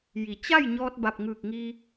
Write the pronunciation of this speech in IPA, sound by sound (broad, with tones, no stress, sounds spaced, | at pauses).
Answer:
j i˧˩ t͡ɕ a˥˨ j ɲ ɔː˧ t̚ b a˧˩ p̚ ŋ ɯː˧˩ k̚ ŋ i˧